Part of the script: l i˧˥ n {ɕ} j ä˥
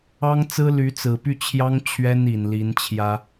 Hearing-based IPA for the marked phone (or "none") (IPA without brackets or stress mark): t͡ɕʰ